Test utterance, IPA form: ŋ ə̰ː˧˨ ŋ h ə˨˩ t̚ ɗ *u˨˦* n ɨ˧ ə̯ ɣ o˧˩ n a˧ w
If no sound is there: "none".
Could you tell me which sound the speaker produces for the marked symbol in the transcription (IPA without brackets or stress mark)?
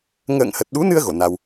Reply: u˨˦